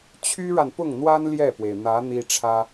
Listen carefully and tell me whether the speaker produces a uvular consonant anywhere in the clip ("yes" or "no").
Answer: no